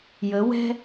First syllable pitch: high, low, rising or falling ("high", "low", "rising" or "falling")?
rising